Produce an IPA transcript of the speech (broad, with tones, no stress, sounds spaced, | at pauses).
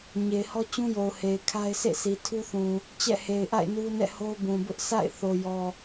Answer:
ɲ e˨ ɪ̯ h ɔ˦ t͡ɕ ũ˦ j o˨ ʊ̯ h e˨ ɪ̯ kʰ a˦ ɪ̯ sʰ ḛ˦˨ sʰ i˨ tʰ u˦ θ ũ˨ | t͡ɕ ɛ̰˦˨ h e˨ ɪ̯ ʔ a̰˦˨ ɪ̯ n u˦ n ɛ̰˦˨ h o˦ ʊ̯ b ũ˨ b ʊ˦ ʔ s a̰˦˨ ɪ̯ θ o˨ j ɔ˨